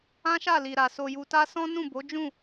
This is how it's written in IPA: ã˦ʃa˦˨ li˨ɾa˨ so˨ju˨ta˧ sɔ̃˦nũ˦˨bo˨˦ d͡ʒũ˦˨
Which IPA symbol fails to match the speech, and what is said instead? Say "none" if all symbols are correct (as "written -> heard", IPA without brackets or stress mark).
none